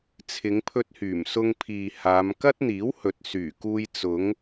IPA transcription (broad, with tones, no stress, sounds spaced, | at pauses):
t͡sʰ ɪ˨˧ ŋ pʰ ɵ˧ t̚ h yː˨˩ m s ʊ˧ ŋ pʰ iː˨ h aː˨˧ m k ɐ˥ t̚ n̪ iː˨˥ w h ɵ˨ t̚ s yː˨˩ k uː˧ j t͡s ʊ˨˧ ŋ